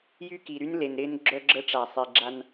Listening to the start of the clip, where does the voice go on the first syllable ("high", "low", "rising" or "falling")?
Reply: high